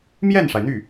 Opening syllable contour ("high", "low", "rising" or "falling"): falling